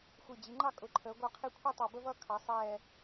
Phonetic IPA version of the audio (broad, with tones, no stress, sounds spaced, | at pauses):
xʷ i˧˩ d͡ʑ i˩˥ ŋ͡ǃ ɑ˥˧ kʼ ʊ˧˩ ǃʰ əː˩˥ ɡʷ ɑ˧˩ qʰ i˧˩ kʷʰ i˥˧ tˤ ɑ˧˩ b ə˥˧ v ʌː˥˧ kʰ ɑ˩˧ sˤ ɛː˧˩